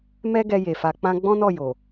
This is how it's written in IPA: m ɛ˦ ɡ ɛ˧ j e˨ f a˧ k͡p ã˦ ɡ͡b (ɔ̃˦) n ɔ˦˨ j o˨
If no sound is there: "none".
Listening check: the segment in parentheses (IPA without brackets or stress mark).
ɔ̃˦